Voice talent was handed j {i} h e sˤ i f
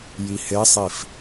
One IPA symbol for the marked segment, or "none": i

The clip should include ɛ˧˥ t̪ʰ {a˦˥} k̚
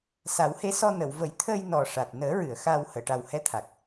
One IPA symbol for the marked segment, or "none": a˨˩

